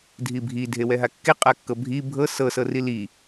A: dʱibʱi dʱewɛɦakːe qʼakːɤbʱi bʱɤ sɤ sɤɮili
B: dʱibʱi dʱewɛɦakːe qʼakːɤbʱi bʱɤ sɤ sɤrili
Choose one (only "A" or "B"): B